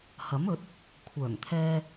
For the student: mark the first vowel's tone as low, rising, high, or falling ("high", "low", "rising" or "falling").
rising